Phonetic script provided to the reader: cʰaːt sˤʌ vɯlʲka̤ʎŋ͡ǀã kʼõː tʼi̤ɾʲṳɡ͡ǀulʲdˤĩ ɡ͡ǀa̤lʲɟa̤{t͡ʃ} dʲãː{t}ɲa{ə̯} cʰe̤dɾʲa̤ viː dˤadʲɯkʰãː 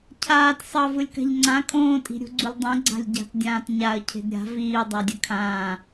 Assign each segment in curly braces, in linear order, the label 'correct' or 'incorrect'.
incorrect, correct, correct

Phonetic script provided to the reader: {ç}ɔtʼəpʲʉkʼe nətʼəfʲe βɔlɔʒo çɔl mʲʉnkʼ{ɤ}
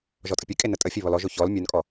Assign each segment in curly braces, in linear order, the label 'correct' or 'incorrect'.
incorrect, incorrect

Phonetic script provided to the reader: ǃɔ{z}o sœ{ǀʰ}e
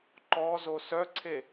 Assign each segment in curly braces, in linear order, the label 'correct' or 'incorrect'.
correct, correct

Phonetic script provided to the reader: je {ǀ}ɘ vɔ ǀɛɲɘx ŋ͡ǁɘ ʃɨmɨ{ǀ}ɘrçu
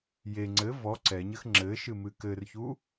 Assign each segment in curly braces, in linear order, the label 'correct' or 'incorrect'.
incorrect, incorrect

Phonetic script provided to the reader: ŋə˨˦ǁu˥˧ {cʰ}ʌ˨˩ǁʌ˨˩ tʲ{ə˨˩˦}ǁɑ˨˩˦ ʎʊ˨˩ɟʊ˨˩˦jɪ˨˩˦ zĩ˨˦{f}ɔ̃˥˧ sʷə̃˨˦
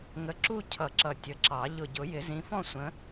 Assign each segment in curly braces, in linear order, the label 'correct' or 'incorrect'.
correct, correct, correct

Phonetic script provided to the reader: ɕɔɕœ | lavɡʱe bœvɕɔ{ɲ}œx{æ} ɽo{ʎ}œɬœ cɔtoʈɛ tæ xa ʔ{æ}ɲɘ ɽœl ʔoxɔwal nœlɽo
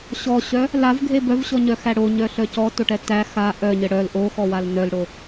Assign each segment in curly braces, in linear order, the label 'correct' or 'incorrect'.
correct, correct, incorrect, incorrect

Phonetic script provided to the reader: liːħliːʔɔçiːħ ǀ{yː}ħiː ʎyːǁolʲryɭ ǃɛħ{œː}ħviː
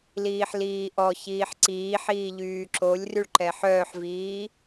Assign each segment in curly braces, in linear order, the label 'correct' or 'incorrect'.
incorrect, correct

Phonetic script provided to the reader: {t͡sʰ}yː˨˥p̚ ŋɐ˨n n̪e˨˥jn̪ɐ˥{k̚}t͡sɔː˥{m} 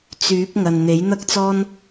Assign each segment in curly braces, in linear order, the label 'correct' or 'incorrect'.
incorrect, correct, incorrect

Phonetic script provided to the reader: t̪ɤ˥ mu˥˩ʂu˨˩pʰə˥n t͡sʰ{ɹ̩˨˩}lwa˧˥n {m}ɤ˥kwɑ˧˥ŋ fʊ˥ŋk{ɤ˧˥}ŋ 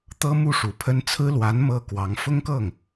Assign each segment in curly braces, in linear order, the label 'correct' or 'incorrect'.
incorrect, correct, incorrect

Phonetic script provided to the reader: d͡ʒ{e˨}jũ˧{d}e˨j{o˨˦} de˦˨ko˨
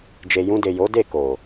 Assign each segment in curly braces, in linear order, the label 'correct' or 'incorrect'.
correct, correct, correct

